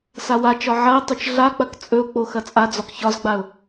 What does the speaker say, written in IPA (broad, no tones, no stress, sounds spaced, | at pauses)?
s a w a t͡ʃ ɒ ʕ ɐ ɪ̯ tˤ ɵ t͡ʃ ɮ a k͡p ɐ k t͡sʼ ɵ ʊ̯ k͡p o x ɐ t͡sʼ a d͡z ɒ k ç ɒ z ɡ͡b a ʊ̯